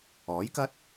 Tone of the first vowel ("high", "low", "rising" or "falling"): rising